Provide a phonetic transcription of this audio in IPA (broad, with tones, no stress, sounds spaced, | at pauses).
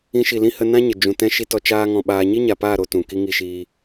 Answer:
ĩ˧ ʃ i˨ l ĩ˦ h ə˧ n ã˦ ɲ ə˨ d͡ʒ ũ˨ t ɛ̃˧ ʃ i˧ t ɔ˧ t͡ʃ aː˦ ŋ ɔ̃˧ ɓ aː˧ ɲ i˦ ɲ a˨ p aː˦˨ ɾ o˧ t ũ˨ k i˦ ŋ i˧ ʃ iː˧